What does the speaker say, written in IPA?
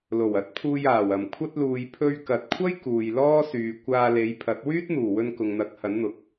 l o˨˩ w ɐ˨˥ t̚ pʰ uː˧ j aː˨˩ w ɐ˨˩ m kʷʰ ɐ˧ t̚ l uː˨ j pʰ ɵ˧ ɥ k ɐ˨ t̚ kʷʰ ɐ˥ j k uː˨ j l ɔː˥ s yː˨ kʷ aː˧ l e˨˧ j pʰ ɐ˨˥ t̚ w yː˥ t̚ n̪ uː˨˩ w ɵ˧ n k ʊ˨ ŋ n̪ ɐ˨˥ k̚ h ɐ˨˥ n n̪ ʊ˨˥ k̚

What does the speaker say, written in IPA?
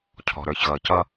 cʰ ɔ̤˩ ɾ ə˞˩ ç ɣ ʌ˩ c ʌ˧

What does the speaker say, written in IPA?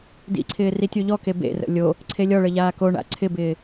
d ḭ ǀʰ ɪː r i tʲ o ʎ ɔ k e b ḛ r ə̰ lʲ o | ǀʰ e lʲ ɔ ɭ ə ʎ aː k o ɳ a̰ ǀʰ ɪ b ɪː

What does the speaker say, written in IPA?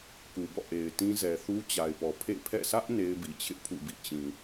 k u˨ b ɔ̰˦˨ ʔ e˨ ɪ̯ t ĩ˦ z ɛ˨ θ u˦ t͡ɕ a˨ ɪ̯ p ɔ˨ pʰ ḛ˦˨ pʰ ɛ̰˦˨ sʰ ä˦ ʔ n e˦ ɪ̯ b i˨ t͡ɕʰ ɪ˦ ʔ pʰ ṵ˦˨ b ḭ˦˨ t͡ɕ ĩ˨

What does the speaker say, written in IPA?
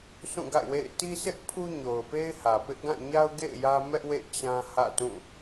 s ũ˦˨ ɡ a̰˦˨ ɪ̯ w ḛ˦˨ ɪ̯ t i˦ s ɪ˦ ʔ pʰ u˦ ɲ o˨ ʊ̯ p e˦ ɪ̯ h ä˨ p ɪ˦ ʔ ɡ ã˦˨ ɲ a˦ ʊ̯ ɡ ḛ˦˨ ɪ̯ j ä˦ m ɛ˦ ʔ w ḛ˦˨ t͡ɕ ã˦ h ä̰˦˨ t ũ˦˨

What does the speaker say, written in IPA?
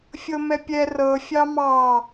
fʲ ɤ m ɛ pʲ ɛ r ɤ fʲ ɑ m ɑ

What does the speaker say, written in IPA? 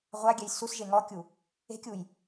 ʁʷ a ɡʲ ɛ j s u s ʒ e ŋ ɔ kʲ u | e̤ kʲ u j

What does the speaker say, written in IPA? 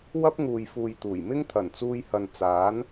w ɐ˥ p̚ ŋ uː˨ j f uː˨ j t̪ uː˨˩ j m ɪ˥ ŋ t̪ʰ ɐ˨˩ n t͡s uː˧ j h ɐ˨ n t͡s aː˨˥ n

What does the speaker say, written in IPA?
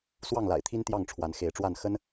s w ɑ˥˨ ŋ l a̰˨˩ ɪ̯ t̪ʰ i˦ n t̪ j ɑ˥˨ ŋ ʈ͡ʂʰ w a˨˦ n x e˨˦ ɪ̯ ʈ͡ʂ w a˥˨ n x ə˦ n

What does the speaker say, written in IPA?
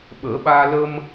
ɓ əː˨˩˦ ɓ aː˧ l ə˧ m

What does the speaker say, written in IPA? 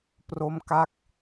p r o˦˥ m k a˦˥ k̚

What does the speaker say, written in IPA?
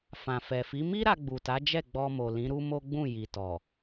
f ã˨ f ɛ˨ f i˨˦ m i˦ ɾ a˧ ɡ͡b u˨ t a˨˦ d͡ʒ ɛ˦˨ ɡ͡b ɔ˧ m o˨ l ĩ˨˦ ɾ u˦ m o˦ ɡ͡b ũ˦˨ j i˨ t ɔ˨

